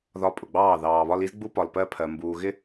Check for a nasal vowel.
absent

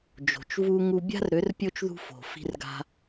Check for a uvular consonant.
absent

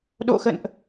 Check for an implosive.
present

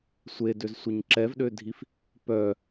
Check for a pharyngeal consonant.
absent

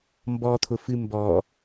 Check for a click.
absent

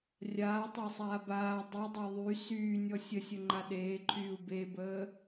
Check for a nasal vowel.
absent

